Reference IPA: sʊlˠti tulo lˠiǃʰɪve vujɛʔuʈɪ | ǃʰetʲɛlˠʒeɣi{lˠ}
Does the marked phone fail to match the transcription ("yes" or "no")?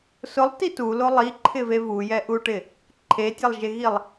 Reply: no